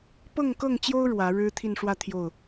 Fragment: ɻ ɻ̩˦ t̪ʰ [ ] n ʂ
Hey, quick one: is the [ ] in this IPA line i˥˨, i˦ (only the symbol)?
i˥˨